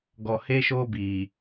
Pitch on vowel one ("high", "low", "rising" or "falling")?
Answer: low